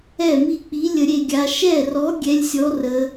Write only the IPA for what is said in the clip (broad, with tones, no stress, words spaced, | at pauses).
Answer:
ɛ˥˩mi˥˩k͡pi˨˥ lʲə˩˧ɾʲe˥˩ɡʲa˩˧ ʃɛ˥˩rɔ˨˥ ɡʲɛ˨˥lʲsʲɔ˨˥rə˩˧